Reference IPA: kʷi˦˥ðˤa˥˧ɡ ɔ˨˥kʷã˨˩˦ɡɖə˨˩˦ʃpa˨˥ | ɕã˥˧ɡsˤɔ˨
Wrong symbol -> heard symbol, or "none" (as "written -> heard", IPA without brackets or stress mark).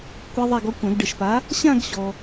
sˤ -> ɕ